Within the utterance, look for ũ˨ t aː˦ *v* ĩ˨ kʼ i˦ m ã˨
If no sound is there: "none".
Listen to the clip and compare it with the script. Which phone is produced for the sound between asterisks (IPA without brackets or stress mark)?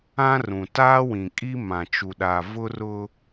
w